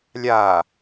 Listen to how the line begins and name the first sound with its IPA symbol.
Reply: lʲ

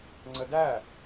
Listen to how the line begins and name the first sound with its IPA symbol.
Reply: ŋ͡ǀ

